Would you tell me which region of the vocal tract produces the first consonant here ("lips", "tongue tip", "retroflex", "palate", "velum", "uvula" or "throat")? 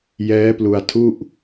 palate